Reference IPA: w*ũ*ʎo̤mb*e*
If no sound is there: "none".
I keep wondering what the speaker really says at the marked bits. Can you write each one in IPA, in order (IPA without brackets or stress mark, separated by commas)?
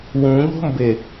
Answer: ũ, e